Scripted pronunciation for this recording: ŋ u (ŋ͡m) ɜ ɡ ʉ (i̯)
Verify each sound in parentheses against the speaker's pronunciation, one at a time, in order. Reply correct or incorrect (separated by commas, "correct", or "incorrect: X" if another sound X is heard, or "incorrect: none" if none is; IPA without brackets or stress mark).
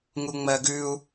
correct, incorrect: u̯